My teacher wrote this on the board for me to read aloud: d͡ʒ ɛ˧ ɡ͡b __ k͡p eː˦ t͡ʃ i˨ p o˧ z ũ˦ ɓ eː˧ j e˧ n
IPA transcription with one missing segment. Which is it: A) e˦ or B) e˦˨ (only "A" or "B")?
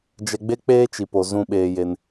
A